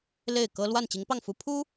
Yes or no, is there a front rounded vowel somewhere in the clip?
no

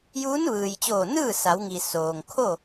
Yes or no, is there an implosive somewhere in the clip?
no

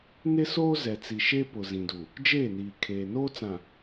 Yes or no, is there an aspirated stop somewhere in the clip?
yes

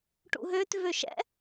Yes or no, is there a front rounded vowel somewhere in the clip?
yes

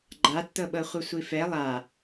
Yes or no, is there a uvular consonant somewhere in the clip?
yes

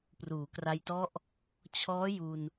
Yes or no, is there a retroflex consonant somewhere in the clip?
no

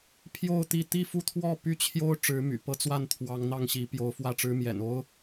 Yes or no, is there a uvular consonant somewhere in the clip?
no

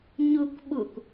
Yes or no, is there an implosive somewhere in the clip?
yes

